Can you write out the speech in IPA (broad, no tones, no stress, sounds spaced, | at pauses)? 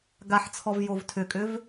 ɡ a ħ t͡sʰ ɔ v j o v tʰ ʏ kʼ ʏ v